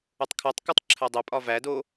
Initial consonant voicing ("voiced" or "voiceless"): voiceless